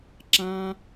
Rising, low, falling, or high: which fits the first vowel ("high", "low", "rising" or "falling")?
high